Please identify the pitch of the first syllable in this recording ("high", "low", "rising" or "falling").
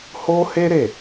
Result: high